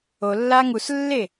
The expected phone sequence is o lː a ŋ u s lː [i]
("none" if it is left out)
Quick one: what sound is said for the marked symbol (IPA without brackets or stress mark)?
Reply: e